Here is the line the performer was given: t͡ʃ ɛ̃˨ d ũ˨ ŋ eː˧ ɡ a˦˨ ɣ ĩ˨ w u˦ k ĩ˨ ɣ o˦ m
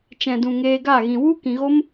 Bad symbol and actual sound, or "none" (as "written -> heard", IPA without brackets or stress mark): none